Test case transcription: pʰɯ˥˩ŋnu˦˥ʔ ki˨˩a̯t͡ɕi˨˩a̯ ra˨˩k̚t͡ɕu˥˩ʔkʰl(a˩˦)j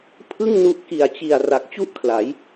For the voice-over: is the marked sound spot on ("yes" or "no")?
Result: yes